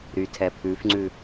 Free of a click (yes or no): no